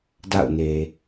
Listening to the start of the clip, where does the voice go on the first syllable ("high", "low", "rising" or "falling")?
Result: falling